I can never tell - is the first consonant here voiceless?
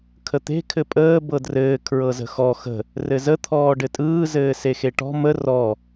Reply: yes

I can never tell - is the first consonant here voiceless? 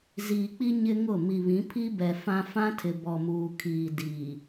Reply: no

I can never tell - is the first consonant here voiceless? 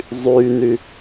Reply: no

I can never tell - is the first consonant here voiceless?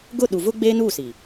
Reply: no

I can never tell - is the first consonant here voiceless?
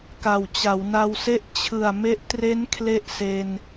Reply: yes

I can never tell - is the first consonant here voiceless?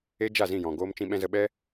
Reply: no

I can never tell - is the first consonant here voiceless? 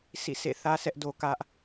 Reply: yes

